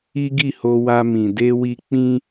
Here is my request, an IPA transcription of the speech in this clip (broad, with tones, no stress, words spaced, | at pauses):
i˦ɡi˦˨ho˧wa˧ mĩ˨de˧wi˧ k͡pĩ˧